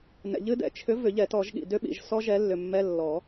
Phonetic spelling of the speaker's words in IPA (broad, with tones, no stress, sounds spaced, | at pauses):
n ɛ̰˨ ʎ ɨ˦˥ d ɛ̰˨ t͡ʃʰ ʏ˨˥ v ʏ˨˩˦ ʎ ɛ˨˩˦ t ɔ˨˩˦ ʒ ɠ ḭ˨ d ʏ˦˥ ɓ ḭ˨ ʒ s ɔ˦˥ ʒ ɛ˨˥ lː ʏ˨ mː ɛ˧˥˧ lː ɔ˨˩˦